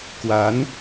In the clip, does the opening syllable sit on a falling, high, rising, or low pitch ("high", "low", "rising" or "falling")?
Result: rising